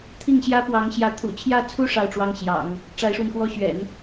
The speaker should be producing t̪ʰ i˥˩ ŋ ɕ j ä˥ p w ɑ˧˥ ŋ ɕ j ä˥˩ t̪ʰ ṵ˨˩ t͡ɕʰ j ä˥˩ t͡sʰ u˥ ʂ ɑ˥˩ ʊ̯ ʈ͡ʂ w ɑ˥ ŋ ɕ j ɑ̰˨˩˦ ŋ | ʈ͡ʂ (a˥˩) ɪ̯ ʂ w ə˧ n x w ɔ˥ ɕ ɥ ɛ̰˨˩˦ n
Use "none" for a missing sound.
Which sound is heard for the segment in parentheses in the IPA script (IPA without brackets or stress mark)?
a˧˥